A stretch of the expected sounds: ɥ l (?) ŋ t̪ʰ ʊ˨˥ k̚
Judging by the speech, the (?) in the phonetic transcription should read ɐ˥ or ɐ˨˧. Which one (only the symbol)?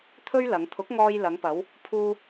ɐ˨˧